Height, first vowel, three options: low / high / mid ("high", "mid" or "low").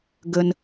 mid